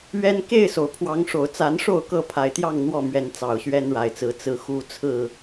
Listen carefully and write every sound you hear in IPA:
ɥ ɛ˦ n k e˥˨ ɪ̯ s o˩ ʊ̯ pʰ w ɑ˨˦ ŋ ʂ o˨˩ ʊ̯ t͡s a˨˦ n ʂ o˥˨ ʊ̯ k ɤ˥˨ pʰ a˨˩ ɪ̯ t̪ j ɑ˥˨ ŋ n̪ w ɔ˥˨ m ɥ ɛ˨˦ n t͡s ɑ˨˩ ʊ̯ ɕ ɥ ɛ˦ n ɻ a˨˩ ɪ̯ t͡s ɹ̩˨˦ t͡s ɹ̩˨˦ x u˥˨ t͡sʰ ɹ̩˥˨

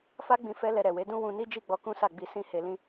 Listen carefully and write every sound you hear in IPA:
f a˦ ɡ͡b ĩ˧ f ɛ˦ l ɛ˧ ɾ ɛ˨ w e˨˦ d ũ˦ w ũ˧ n i˦ d͡ʒ i˦˨ ɡ͡b ɔ˧ k ũ˦ s a˦˨ ɡ͡b i˧ s ĩ˦ h e˧ l ĩ˦

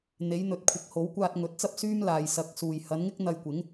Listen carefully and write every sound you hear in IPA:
n̪ e˨˥ j n̪ ɵ˨˥ t̚ kʷʰ ɪ˨ k̚ h o˨˥ w kʷ aː˧ t̚ ŋ ɵ˨˥ t̚ t͡s ɐ˥ p̚ s yː˥ m l aː˨ j s ɐ˨˥ k̚ s uː˨ j h ɐ˨˥ n ŋ ɪ˥ k̚ n̪ ɐ˧ j kʷ ɪ˨˥ ŋ

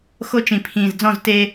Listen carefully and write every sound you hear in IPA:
x o˦ t͡ʃ ĩ˨ pʰ ĩː˨ z d͡z ɔ̃˦˨ z t e˦

